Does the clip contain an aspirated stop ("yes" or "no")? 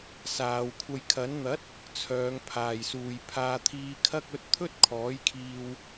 yes